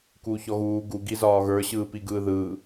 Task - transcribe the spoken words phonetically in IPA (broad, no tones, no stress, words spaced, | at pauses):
kuːçɔɣuː ɡu ɡizɒːɣə˞ ɕɯːpiɡɯːðɯː